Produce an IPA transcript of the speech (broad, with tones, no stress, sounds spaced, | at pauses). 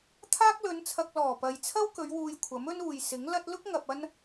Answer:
t̪ʰ aː˥ k̚ l ɵ˨˧ n t͡sʰ ɐ˧ k̚ l ɔː˨˩ p ɐ˨ j t͡sʰ ɐ˥ w k ɵ˨˧ ɥ w uː˧ j kʷʰ ɐ˨˥ m ɵ˥ n uː˨ j s ɪ˨˥ ŋ l ɐ˥ t̚ l ʊ˥ k̚ ŋ ɐ˨ p̚ ɐ˥ n